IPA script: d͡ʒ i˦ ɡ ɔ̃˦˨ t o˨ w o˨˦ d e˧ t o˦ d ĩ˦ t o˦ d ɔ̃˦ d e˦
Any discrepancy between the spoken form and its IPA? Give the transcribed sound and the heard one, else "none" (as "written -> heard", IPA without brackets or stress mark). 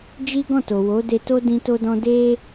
none